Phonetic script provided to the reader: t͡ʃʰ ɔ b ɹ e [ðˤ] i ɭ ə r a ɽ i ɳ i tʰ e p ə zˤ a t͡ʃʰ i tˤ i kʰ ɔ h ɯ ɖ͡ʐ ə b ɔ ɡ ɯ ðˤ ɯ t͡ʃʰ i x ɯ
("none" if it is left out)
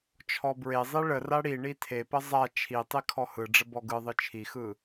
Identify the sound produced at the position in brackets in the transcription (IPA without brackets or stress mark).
zˤ